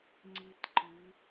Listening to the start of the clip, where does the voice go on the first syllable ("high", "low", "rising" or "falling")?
high